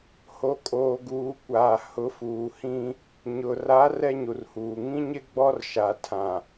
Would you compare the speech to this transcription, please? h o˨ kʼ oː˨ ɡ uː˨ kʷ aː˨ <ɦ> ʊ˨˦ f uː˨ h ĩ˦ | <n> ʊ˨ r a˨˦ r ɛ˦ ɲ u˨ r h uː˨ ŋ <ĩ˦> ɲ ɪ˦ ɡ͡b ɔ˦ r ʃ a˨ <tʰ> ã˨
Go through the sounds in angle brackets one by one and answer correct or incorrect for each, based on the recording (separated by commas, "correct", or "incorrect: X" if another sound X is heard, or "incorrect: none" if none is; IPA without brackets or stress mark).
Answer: incorrect: h, incorrect: ɲ, correct, correct